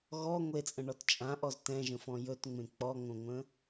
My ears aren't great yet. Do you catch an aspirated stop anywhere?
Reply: no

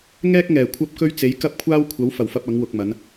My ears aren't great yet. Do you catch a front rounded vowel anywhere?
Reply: no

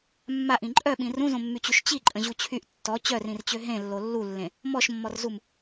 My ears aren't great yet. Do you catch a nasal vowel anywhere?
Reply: yes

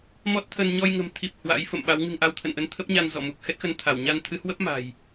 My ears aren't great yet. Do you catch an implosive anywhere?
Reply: yes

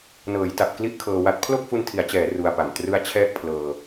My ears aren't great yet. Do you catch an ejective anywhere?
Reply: no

